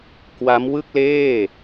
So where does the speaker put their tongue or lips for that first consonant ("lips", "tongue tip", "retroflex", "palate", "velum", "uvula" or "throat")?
velum